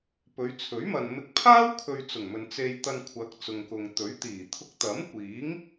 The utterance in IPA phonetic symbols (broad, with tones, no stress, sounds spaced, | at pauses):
p ɵ˨˧ ɥ t͡sʰ ɵ˨˥ ɥ m ɐ˨ n m ɪ˨˥ k̚ pʰ aː˥ w kʰ ɵ˧ ɥ t͡s ʊ˨˩ ŋ m ɵ˨ n t͡s e˧ j t̪ ɐ˧ n kʷʰ ɐ˨˥ k̚ t͡s ʊ˨ ŋ k ʊ˨ ŋ t̪ ɵ˨˥ ɥ t̪ iː˨˩ t̪ʰ ʊ˧ k̚ t̪ ɐ˨˥ m kʷ iː˨˥ ŋ